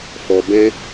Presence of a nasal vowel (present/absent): present